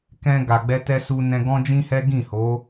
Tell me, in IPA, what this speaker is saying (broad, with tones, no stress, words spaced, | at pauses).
kɛ̃˧ ɡa˨ɡ͡bɛ˧tɛ˧ su˧ nɛ̃˧ ɡɔ̃˦d͡ʒĩ˦hɛ˦ ɡĩ˦˨ho˨˦